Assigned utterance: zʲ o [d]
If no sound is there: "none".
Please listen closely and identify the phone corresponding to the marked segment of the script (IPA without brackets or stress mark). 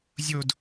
d